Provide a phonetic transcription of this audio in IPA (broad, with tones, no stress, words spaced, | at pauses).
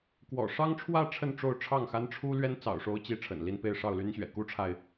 kwɔ̰˨˩ʂɑ˥ŋʈ͡ʂʰwä˥˧ ʈ͡ʂʰə˥˧nʈ͡ʂo˥˧ʊ̯ʈ͡ʂʰɑ˥˩ŋxa˥n ʈ͡ʂʰu˥ lɥɛ˥nt͡sɑ̰˨˩ʊ̯ʂo˧˥ʊ̯t͡ɕi˧˥ ʈ͡ʂʰə̰˨˩nli˥˧n pe˥˧ɪ̯ʂɑ˥˩ʊ̯ly˥nɕɥɛ̰˨˩ ku˥ʈ͡ʂʰa˨ɪ̯